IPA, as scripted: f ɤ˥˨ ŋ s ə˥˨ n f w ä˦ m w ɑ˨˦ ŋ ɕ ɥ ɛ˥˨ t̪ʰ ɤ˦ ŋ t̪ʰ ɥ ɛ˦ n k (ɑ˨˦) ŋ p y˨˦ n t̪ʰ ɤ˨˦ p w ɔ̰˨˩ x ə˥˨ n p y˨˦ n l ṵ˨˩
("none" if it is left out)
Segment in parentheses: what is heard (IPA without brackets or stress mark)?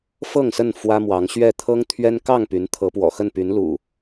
ɑ˥˨